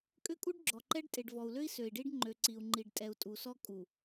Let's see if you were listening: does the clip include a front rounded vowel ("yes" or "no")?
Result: yes